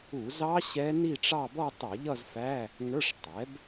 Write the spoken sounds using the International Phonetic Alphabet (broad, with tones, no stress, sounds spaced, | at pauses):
u˧˩˧ z ɑ˦˥ ɕ ɛ˦˥ n i˥˧ ʈ͡ʂ ɑ˥˧ b ɔ˥˧ tˤ ʌ˧˩˧ ʎ ʌ˥˧ z f æ˧˥˧ | ŋ ə˞˧˥˧ ʂ tˤ ɛ˩˥ b